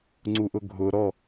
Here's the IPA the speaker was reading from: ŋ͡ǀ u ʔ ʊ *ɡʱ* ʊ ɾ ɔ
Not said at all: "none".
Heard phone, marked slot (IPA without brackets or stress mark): ɡʱ